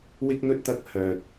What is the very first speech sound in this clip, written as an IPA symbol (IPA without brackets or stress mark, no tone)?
w